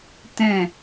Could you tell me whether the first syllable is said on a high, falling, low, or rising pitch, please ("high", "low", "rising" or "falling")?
falling